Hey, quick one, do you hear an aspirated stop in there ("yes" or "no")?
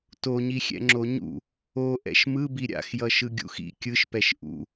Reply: no